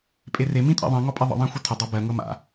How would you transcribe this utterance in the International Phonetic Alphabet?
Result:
pʼ e r e m ĩ tʼ ḭ ðˤ ĩ ŋ ɔ pʼ e ðˤ ə̰ ðˤ ã xʷ ɨ tʰ ə dˤ a b ɜ ŋ ɤ m a̰

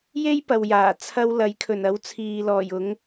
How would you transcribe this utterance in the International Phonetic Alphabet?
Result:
j e˥ j p ɐ˨ w j aː˨˩ t͡sʰ ɐ˧ w l ɐ˨˥ j kʰ ɵ˨˩ n ɐ˨˥ w t͡sʰ iː˨ l ɔː˨˩ j ʊ˨˥ ŋ

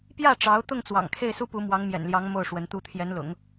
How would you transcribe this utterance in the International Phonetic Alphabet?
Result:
p j ä˥˩ ʈ͡ʂ ɑ˧˥ ʊ̯ t̪ ʊ˥˩ ŋ t͡s w ɑ̰˨˩ ŋ kʰ e˥˩ ɪ̯ s u˥ p u˧˥ m w ɑ˧˥ ŋ m j ɛ̰˨˩ n l j ɑ˧˥ ŋ m o˥˩ ʊ̯ ʂ w ə˧˥ n t̪ u˥ t̪ʰ j ɛ˧˥ n l ʊ̰˨˩˦ ŋ

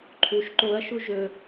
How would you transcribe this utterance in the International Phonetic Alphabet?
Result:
ǃʰ u ʃ ǃ o ɐ̯ ʃ u ʒ ɵ

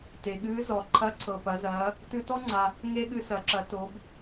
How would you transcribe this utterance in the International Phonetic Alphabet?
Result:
t e˩ ɠ ɨː˧˥ z ɔ˩ ǃʰ ɐ˧˥ ǀʰ ɤ˩ p ɐ˩˧ z ɐː˩˧ | t ɨ˧ t ɔ˥ ŋ͡ǀ a˩ | ŋ e˥ ɠ ɨ˧ s ɐ˩˧ ǁ ɐ˩˧ t o˩˧ b

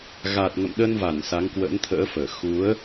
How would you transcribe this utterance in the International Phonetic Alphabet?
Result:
ɣ a˨˩ t̚ ŋ ə̰˧˨ m ɗ ə˧ n v a˧˩ n s a˨˦ ŋ k w ə̰˧˥ n t̪ʰ ə̰ː˧˥ f əː˧˩ x u˨˦ ə̯

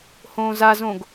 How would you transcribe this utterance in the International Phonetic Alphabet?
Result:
h õː z a z õ ɡ

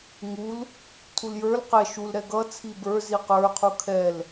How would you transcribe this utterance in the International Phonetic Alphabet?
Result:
ŋ u l | tʰ u l j ə˞ l q ɛ ʃ u l ɾ ɛ ɡ ʌ t͡sʰ i b ə˞ z i q ə˞ qʰ u kʰ ɛ l

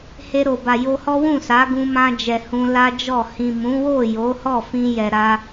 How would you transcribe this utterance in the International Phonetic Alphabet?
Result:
h e˧ ɾ o˨ b a˨ j o˧ h ɔ˦ w ũ˦˨ s a˨˦ ɡ ũ˧ m ã˧ d͡ʒ ɛ˨ h ũ˧ l a˦ d͡ʒ ɔ˦˨ h ĩ˨ m ũ˨˦ w o˦˨ j o˨˦ h ɔ˦˨ f ĩ˧ j ɛ˨ ɾ a˧

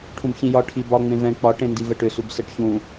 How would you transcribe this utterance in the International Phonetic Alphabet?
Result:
ʈʰ ũ b ç ĩ j ɒ ʈʰ i b ɒ ŋ͡m ẽ v ɛ̃ k͡p ɒ ʈ ẽ n d i v ɛ ʈ ʏ s u b s ɛ ʈ ç ũ

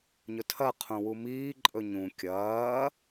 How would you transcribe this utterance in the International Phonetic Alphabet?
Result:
ɲ ɵ tʰ ɐ qʰ ũ w u m iː ǃʼ ɵ ɲ ũ kʲ ɐː

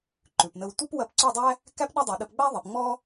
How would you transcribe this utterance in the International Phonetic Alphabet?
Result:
ǃ ʉ˨ p n ə˧ w tʷ ə˦ p w ɐ˧ p ǀ ʉ˦˨ dˤ æ˦ | k æ˦ p ɗ ɐ˦ dˤ i˨ ɗ ə˧ p ɡ͡b æ˦ ðˤ i˨ p ŋ͡m ɔ˦

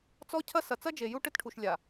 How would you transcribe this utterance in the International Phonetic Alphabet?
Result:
t͡s ɔ˦ cʰ ɐ˦ s ɐ˨ t͡s ɐ˦ d͡ʒ e˨ j u˦ ʈ ɘ˦ t ʈʰ u˨ ʃ lʲ a˨

